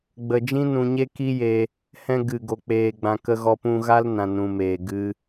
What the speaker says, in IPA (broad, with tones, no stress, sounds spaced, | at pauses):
ɡ͡b ə˨ d͡ʒ ĩ˦ n ũ˧ ɲ e˦ k i˦ j e˧ | h ɛ̃˧ ɡ ɨ˨ ɡ o˧ k͡p eː˧ ɡ͡b ã˧ k ə˦ ɣ ɔ˦ p ũ˧ ɣ a˦ l n ã˨ n ũ˨ m eː˨ ɡ ɨ˦